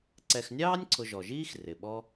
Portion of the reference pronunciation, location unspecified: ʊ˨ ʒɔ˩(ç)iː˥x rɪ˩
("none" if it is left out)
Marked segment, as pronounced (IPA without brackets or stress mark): ʒ